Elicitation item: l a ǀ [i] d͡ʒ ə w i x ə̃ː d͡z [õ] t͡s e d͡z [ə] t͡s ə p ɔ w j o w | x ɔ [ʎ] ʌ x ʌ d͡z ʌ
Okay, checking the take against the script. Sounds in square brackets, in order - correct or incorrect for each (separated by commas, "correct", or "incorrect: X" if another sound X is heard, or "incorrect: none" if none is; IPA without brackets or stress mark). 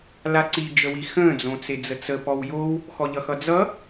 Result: correct, correct, correct, correct